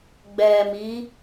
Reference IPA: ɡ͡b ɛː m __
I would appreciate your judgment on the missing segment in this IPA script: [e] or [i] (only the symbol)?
i